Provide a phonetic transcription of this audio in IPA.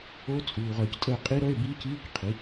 o˦˥ t͡sʼuː˨ʁœː˨ctʼəː˦˨ qʼi˦˥ɾœ˧˥˧e̯ biː˦˥ciː˧˥˧k qʰi˩˥

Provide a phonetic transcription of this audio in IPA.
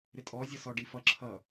ɾɪtʼɔ zʲʌsɔɖifʌ ǁʰʌ

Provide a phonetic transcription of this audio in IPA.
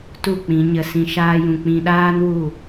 tu˦˨k͡pĩ˨˦ ɲə˧sĩ˧ ʃaː˦jũ˧ k͡pĩ˧ɗaː˦n wu˦˨

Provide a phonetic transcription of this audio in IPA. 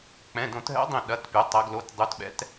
k͡pɛ̃˩˧˩dõ˧˩˧tɦɛ̰˨˥ dˤĩ˧˩ɗɐ˩˧˩tpʲɐ˩˧ tˤɐ˩˧ɡlo˩˧˩t dˤu˩˧tɓɛ̰˩˧t

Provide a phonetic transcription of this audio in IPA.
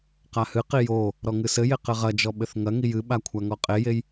qahɨqi jo | ɾɔŋɨsɘje qɘʁɐd͡ʒɔ ɓɘθŋɐŋi jɨɓa kʷʰaŋɔqʼejej

